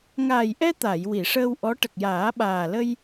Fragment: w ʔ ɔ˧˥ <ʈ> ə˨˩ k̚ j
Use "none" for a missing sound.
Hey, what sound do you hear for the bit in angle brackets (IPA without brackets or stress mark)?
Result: ʈ